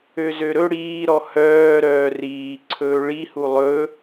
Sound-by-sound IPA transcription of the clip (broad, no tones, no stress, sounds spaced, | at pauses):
ø z ø ɾ ɵ ɽ iː ɾ ɔ h œː ɾ œː r iː ǀʰ ɵː ɭ i h u lˠ ɵ